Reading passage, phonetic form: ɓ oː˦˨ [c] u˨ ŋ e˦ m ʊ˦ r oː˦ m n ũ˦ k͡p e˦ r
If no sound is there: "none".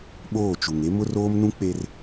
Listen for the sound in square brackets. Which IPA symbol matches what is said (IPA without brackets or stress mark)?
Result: t͡ʃ